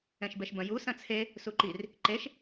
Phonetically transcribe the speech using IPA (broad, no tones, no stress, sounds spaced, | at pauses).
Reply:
ɛ̃ ʃ b ɛ ʃ b ɐ̃ j u s ɐ̃ t͡sʰ e | s u ǃ i r | ǃ e ʃ